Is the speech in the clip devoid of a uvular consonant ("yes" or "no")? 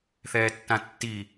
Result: yes